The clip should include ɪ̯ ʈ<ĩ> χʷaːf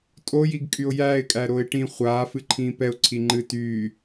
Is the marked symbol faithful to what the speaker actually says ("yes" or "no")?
yes